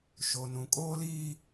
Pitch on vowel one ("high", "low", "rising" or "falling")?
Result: low